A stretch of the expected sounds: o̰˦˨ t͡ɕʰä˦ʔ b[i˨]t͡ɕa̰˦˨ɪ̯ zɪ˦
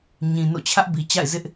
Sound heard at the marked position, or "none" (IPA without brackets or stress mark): i˨